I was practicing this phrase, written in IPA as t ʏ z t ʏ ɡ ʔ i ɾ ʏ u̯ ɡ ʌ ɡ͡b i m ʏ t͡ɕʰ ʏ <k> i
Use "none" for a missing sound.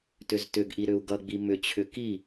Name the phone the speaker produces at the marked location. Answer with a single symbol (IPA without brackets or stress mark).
k